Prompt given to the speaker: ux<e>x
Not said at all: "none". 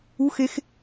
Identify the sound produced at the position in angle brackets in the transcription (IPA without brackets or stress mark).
e